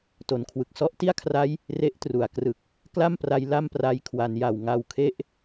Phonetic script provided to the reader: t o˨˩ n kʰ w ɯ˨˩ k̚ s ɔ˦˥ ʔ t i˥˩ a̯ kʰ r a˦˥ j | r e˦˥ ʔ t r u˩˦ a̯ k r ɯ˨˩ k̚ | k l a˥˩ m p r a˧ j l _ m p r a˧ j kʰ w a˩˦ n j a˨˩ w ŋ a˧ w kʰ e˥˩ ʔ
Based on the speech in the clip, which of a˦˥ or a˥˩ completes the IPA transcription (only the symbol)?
a˥˩